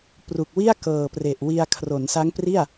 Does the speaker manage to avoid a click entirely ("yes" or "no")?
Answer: yes